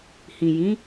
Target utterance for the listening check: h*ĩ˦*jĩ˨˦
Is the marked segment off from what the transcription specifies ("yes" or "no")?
yes